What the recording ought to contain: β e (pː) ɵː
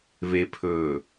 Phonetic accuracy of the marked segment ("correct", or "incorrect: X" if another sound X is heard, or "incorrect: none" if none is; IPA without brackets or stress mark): incorrect: pʰ